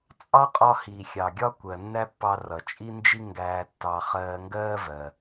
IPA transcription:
t͡sʼ ɑ˥ qʼ ɒ˧ h i˩ xʲ ɑ˩ ɡʲ ɒ˥ kʷ ɜ˩ nː æ˥ pː ɑ˧ r ʌ˩ t͡ʃʼ i˥ n d͡ʒ i˥ ŋ ɡ æː˧ tː ɑ˧ χ ɜː˧ ŋ ɡ ɜː˥ v ɜ˩

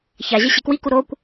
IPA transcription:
ç a ʑ ɐ ɕ e k w i k u ɾ o kʷ

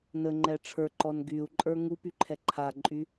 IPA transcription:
n ə ŋ͡ǃ ɛ ʈ͡ʂʰ ə˞ ǃ ɔ n ɡ y u̯ ǃʼ ə˞ ŋ u p y ǃʰ ɛ ǃʰ a ǃʼ y

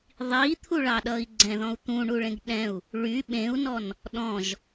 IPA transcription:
ðˤ i t̪ʰ u ɭ ɑ ɗ ʌ i̯ ɡ͡ǀ ɛ̃ ð ɔ̃ u̯ t̪ ũ ɳ u ɭ ẽ ɡ ɗ ɛ̃ u̯ | ɭ y ɓ ẽ u̯ n ɔ n | ɗ ɔ̃ ʒ

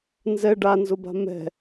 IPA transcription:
n z ɛ ɖ a n z ʊ b a̤ m ɛ̤

